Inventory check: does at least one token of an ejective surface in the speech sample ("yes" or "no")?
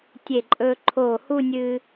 yes